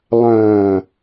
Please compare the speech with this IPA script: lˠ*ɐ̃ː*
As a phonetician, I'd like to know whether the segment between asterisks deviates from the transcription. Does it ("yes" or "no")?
no